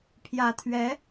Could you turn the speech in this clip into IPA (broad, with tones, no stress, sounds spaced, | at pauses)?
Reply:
pʰ j ä˨˩ t̪ʰ ɥ ɛ˧˥